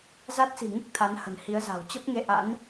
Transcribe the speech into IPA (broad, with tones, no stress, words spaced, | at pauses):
za˦˥t̚si̤˨˩ ŋɨ˦˥k̚ t̪ʰa˨˦nhə̤˨˩n hi˨˦ə̯za̤˨˩w t͡ɕə˦˥p̚ŋe˧ʔa̰˧˥n